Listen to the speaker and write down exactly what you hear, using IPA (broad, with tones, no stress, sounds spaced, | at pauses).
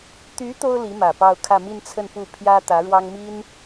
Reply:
t̪ y˧˥ t̪ o˥ ʊ̯ l i˧˥ m ä˨˩ p ɑ˥˧ ʊ̯ kʰ ä˥˧ m i˥˧ n t͡sʰ ə˥˧ n p u˥˩ pʰ j ä˥ t̪ ä˧˥ ɻ w ɑ˥ ŋ m i˥ n